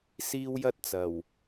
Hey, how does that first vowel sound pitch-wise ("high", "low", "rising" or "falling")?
high